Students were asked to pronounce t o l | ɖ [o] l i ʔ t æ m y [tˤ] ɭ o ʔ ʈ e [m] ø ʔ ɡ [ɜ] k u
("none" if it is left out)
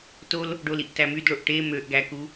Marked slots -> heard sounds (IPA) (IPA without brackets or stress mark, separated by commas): o, d, m, æ